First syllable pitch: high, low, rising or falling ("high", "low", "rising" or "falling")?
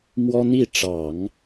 high